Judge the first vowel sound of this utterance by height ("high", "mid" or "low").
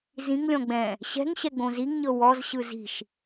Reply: high